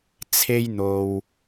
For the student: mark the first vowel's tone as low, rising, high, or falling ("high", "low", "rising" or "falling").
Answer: high